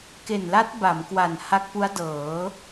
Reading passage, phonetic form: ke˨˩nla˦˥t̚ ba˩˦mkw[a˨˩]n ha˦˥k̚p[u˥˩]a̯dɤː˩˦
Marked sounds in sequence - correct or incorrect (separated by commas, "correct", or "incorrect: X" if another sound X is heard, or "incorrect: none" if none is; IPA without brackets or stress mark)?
correct, incorrect: u˦˥